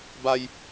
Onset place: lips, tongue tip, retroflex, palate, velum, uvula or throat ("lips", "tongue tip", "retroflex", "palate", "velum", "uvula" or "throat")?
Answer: lips